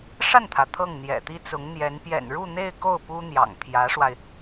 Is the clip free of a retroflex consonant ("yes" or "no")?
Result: no